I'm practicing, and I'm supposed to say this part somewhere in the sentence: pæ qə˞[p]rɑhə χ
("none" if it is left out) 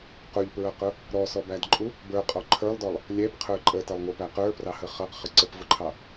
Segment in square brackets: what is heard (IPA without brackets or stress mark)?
p